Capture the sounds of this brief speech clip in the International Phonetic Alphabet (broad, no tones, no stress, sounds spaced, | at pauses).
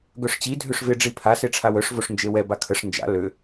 ɡ œ ʂ t͡ɕ i dʱ ø ʂ v ɪ ɖ͡ʐ i pʰ a s e ʈ͡ʂʰ a w œ ʂ v o ʂ n d͡ʒ e w ɛ b a kʰ ə ʂ n d͡ʒ a̰ l ø